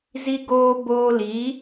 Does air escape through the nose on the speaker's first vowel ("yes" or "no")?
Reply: no